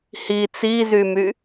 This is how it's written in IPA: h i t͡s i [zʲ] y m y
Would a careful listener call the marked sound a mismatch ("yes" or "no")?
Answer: yes